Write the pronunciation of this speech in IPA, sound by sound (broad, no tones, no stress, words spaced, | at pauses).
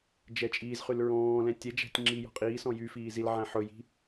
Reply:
d͡ʒɛt͡ʃʼiːzχyl ɹɔ̃ːlɛ̃ tʲɛd͡ʒæ̤tʲ ŋ͡ǁi jɔ̤qʼiːsɔ̃ jyfiː zilʕæ̃ ħɵji̤